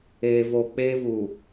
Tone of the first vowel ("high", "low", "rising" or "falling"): low